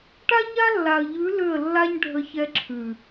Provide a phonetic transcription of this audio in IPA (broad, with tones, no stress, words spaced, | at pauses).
ʈa˦ɲa˦lːa˨ə̯ʎʉ˨˦ lʏ˦˨ə̯lːa˦ɲɖʱə˧ çɛ˧ǁʰʉ˨